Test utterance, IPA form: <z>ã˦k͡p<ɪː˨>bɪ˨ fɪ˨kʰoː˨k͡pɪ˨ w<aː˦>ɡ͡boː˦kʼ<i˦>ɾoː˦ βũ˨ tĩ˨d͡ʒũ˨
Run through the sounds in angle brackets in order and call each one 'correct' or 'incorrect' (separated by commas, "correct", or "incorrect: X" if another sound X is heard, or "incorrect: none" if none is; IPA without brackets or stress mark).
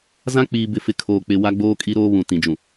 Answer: correct, incorrect: iː˨, incorrect: a˦, correct